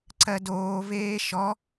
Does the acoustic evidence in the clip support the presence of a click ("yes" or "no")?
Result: yes